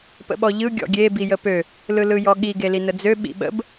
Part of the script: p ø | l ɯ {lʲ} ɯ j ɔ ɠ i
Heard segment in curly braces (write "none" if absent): l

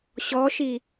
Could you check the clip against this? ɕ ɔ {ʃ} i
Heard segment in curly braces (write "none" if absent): ʃ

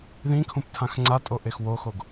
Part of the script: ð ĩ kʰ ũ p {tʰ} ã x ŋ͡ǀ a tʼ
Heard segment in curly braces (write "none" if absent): tʰ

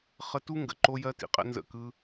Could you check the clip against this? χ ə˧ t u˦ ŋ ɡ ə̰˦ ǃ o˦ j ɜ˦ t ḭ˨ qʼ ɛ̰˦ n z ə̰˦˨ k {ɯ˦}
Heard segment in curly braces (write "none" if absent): ɯ˦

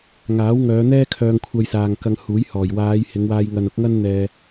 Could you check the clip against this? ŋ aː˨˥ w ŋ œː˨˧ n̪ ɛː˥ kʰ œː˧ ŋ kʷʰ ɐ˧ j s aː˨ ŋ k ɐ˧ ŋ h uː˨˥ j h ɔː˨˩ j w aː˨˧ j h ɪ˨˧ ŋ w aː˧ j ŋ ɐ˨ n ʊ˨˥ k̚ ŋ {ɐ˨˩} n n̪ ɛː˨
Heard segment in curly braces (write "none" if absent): ɐ˥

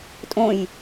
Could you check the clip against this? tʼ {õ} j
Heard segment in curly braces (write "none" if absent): õ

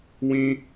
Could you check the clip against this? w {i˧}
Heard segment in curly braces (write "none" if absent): ĩ˧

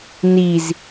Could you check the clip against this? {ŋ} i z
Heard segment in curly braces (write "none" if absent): n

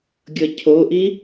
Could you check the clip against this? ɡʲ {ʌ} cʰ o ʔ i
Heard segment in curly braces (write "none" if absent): ʌ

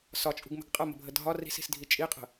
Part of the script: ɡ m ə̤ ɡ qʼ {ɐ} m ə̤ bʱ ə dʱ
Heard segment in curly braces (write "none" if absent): ɐ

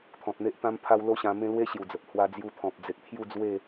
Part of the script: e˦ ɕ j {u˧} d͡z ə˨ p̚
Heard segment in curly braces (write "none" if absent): u˨˩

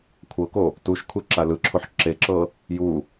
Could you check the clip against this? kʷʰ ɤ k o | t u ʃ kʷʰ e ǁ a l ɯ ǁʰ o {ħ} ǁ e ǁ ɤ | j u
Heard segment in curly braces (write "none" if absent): ħ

